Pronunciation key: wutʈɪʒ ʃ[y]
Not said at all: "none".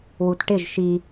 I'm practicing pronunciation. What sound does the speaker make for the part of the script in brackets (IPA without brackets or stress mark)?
i